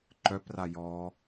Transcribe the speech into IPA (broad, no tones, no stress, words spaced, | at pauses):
ǃœpra jɔ